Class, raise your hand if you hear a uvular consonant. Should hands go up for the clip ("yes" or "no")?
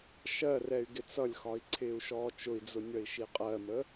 yes